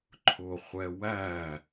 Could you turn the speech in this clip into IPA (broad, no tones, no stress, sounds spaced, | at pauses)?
ǃʰ ʊ χʷ ɛ w æ